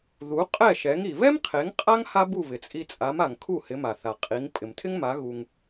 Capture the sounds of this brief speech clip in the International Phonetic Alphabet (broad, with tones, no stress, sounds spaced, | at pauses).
ð u˩˥ qʼ ɛ˥˩ ʃ ɛ˩˥ ŋ i˩ β ɛ˥ m qʰ e˩˥ ŋ qʼ a˥ ŋ h a˥ b u˥˩ β ɪ˩ t͡sʼ i˧ t͡sʼ a˩˥ m a˩ ŋ kʰ u˥˩ h ɪ˩˥ m a˩ θ a˩ qʼ i˩˥ ŋ pʼ ɪ˩ m tʰ ɪ˥ ŋ m a˩˥ ɣ u˧ ŋ